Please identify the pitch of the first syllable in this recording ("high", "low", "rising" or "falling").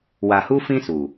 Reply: low